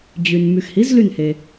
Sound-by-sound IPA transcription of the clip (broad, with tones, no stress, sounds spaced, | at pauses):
d͡ʑ y˩ n m y˩ x h i˩˥ z l y˧˩ n h e˩